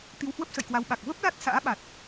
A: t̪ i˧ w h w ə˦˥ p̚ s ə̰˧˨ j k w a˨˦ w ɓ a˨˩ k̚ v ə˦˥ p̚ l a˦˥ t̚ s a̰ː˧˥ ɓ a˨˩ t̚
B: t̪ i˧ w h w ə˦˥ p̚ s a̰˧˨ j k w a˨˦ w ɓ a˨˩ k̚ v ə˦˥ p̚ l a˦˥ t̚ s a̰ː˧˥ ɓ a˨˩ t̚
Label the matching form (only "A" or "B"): A